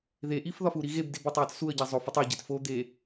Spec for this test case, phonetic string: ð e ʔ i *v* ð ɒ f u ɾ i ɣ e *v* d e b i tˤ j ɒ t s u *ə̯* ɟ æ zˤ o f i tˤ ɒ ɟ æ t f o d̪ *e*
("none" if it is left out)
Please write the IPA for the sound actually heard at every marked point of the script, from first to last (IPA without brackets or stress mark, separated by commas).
f, b, ə̯, e